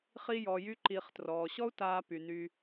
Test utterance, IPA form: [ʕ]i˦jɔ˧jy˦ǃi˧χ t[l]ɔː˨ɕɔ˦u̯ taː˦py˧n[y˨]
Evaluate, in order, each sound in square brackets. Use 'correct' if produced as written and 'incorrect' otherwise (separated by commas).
incorrect, incorrect, incorrect